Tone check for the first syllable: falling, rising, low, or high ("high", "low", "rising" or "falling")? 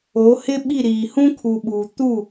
rising